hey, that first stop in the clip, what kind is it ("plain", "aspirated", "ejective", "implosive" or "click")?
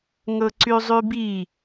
click